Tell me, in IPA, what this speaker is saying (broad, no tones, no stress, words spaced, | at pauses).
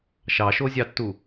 ʃɑʃozʲɑtːu